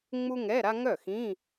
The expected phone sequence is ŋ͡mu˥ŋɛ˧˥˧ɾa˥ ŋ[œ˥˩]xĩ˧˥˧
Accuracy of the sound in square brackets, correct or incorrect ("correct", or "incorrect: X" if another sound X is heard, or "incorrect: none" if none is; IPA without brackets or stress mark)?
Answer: correct